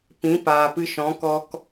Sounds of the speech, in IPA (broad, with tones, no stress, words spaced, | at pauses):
pĩ˨˦ paː˨pɨ˧ʃɔ̃˨˦ kɔ˧k